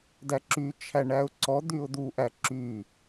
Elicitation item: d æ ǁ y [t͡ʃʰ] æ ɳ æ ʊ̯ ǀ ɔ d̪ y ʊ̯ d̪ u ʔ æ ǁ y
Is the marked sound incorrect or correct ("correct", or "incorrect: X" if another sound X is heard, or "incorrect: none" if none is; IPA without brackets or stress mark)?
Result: correct